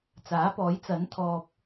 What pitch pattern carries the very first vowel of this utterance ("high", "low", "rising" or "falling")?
rising